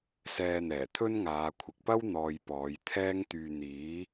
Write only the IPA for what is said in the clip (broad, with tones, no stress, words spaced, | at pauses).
sɛː˧n̪ɛː˨˩t̪ʰɵ˥nŋaː˨˧ kʷʰɪ˨k̚pɐ˥w n̪ɔː˨j pɔː˨˧jt̪ʰɛː˥ŋt̪yː˧ n̪iː˨˥